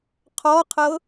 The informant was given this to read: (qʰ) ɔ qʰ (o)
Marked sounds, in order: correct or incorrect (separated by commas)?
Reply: correct, incorrect